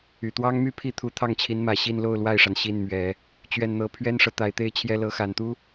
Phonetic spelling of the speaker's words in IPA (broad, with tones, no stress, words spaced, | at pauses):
y˨˩t̪wɑ˥ŋmy˥˧ pʰi˥˩t̪ʰu˧˥ t̪ʰɑ˥˩ŋt͡ɕʰi˧˥nmä˨˩ ɕi˥˧nlo˥˧ʊ̯ lwa˥˩ɪ̯ʂa˩n ɕi˥˩nmɥɛ˨˩˦ | t͡ɕɥɛ˥˩nn̪ɤ˥ pʰɥɛ˥nʂɤ˨ t̪a˧˥ɪ̯t̪e˥ɪ̯t͡ɕʰjɛ˥ lɤ˧˥xa˨˩nt̪u˥